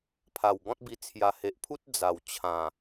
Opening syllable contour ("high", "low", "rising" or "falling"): low